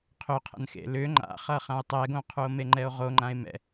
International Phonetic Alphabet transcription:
qʰʏqʰə̰n xḛlʏ ŋ͡ǃa̰χʌχão̯ tˤɛɡõqʰuo̯ meŋ͡ǃɛo̯ʁo ŋ͡ǃãe̯mɛ̰

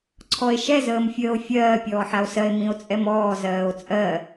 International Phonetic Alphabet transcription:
ǀʰɔe̯ʃɛz əːmfʲəːo̯fʲɜː pʲɔːħao̯sɜe̯ mĩo̯t͡sʼɛmɔːz ɜːo̯t͡sʼɜ

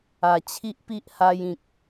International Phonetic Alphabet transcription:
a˨˩ t͡ɕʰi˦ʔpi˦ʔha˧jĩ˨k̚

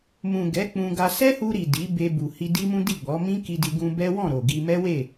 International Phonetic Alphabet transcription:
mũ˨ ɡɛ˨˦ k͡pũ˧ɡa˧ sɛ˦hu˧ɾi˨ di˨˦be˧bu˨ hi˧di˦mũ˦ di˦˨ɡ͡bɔ˨˦ mĩ˦ki˧di˧ ɡũ˧bɛ˦wɔ̃˦˨ ɾo˨ɡi˧ mɛ˦we˦˨

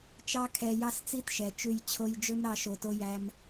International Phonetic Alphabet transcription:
t͡ʃɑ˧kʰɛ˨ jɑ˦˨st͡si˦tʃɛ˨t͡ʃʉ˧j t͡ɕʰo˧jd͡ʒɵ˦m ɾɑ˦ʃo˧to˦ jæ˦m

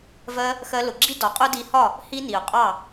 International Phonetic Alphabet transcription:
vɜ˧ | xɜ˧lʊ˨ɡ͡ǁi˦ dɒ˨qʼʊ˦ di˧hɒ˦˨ | hi˦ni˨ʊ̯qʼɑ˦˨

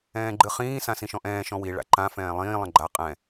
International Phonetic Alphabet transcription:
ɛ̃ːɡ͡ǃɨχĩː sãsĩʃɔ̃ʔɛ̃ː ʃɔ̃wi ɭa̰ǃã fɛ̃ːlˠĩː lˠə̃ɡ͡ǃa qʼɛ̃

